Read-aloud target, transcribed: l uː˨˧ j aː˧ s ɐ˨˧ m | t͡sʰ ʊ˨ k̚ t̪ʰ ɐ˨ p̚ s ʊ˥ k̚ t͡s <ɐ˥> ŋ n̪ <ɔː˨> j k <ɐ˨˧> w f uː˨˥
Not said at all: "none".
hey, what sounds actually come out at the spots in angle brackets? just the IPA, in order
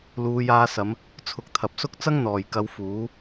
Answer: ɐ˥, ɔː˨˩, ɐ˨˧

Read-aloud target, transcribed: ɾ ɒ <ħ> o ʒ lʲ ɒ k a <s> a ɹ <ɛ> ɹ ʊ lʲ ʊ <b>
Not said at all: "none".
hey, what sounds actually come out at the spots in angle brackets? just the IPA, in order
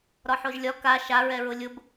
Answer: ħ, ʃ, ɛ, b

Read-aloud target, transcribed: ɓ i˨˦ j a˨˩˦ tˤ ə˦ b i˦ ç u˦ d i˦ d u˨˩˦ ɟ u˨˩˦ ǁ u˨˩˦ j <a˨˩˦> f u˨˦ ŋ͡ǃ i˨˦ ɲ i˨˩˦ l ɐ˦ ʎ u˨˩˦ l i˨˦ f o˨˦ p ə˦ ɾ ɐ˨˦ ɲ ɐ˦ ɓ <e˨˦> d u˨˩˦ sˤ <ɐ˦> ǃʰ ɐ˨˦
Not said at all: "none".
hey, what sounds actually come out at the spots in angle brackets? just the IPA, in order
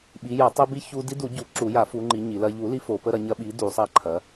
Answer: a˨˩˦, i˨˦, ɐ˦

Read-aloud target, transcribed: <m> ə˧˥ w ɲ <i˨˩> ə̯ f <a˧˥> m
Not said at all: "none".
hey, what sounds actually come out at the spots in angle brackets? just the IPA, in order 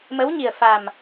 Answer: m, i˨˩, a˨˩

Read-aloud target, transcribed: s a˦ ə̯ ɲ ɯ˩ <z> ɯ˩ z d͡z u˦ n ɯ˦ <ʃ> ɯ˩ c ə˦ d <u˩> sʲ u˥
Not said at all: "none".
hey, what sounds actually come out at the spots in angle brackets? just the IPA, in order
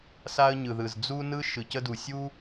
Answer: ð, ʃ, u˩

